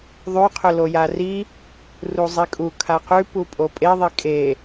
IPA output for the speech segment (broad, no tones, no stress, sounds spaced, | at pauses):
ðˤ ʉ qʰ ɵ l o j a r i | r u zˤ i kʼ u kʰ a q ʉ p u pʼ o pʼ e ðˤ e kʼ e